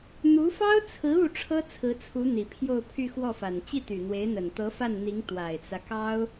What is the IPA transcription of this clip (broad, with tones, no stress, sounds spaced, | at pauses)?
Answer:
n̪ u˧˥ f ɑ˥ ʊ̯ t͡sʰ ɹ̩˧˥ u˥˩ ʈ͡ʂʰ ɤ˥ t͡sʰ ɹ̩˧˥ t͡sʰ u˧˥ n̪ i˨˩ pʰ j o˥˧ ʊ̯ pʰ y˥˧ x w ɔ˥˩ f a˨˩ n t͡ɕ i˥˩ t̪ y˨˩ n̪ w e˧˥ ɪ̯ n̪ ə˨˩ n t̪ ɤ˧˥ f a˥˩ n n̪ i˧˥ ŋ t̪ w a˨˩ ɪ̯ t͡s ä˦ k ɑ˥ ʊ̯